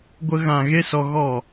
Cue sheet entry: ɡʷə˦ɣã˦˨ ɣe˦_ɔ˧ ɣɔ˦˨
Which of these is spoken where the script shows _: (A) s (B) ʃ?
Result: A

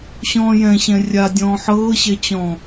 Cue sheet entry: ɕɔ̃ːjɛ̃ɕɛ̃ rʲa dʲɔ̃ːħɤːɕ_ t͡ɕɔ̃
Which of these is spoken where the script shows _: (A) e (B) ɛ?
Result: B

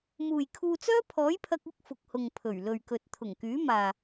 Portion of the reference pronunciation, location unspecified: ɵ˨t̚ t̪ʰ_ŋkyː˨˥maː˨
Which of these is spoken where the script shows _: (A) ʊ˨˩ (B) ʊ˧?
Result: A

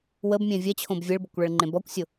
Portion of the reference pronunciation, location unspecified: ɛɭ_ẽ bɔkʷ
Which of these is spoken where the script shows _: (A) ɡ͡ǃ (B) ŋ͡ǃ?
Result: B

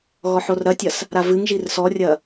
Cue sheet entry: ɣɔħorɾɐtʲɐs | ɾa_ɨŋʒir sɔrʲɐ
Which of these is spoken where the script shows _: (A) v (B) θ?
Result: A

